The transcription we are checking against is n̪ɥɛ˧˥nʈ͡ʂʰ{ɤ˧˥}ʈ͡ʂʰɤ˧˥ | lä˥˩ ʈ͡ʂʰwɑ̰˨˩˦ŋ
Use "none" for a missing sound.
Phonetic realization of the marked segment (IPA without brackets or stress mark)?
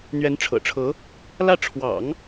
ɤ̰˨˩